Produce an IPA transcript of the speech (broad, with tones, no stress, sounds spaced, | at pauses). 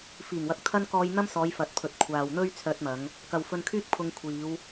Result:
f iː˨˩ ŋ w ɐ˨ k̚ t̪ʰ ɐ˥ n k ɔː˧ j n̪ ɐ˥ m s ɔː˨˧ j f ɐ˨˥ t̚ pʰ ɵ˨˥ t̚ kʷʰ aː˨ w n̪ ɵ˥ ɥ t͡sʰ œː˧ t̚ m ɐ˨˧ ŋ | k ɐ˨ w f ɵ˧ n kʰ yː˥ k̚ pʰ ʊ˧ ŋ kʷʰ iː˨˧ w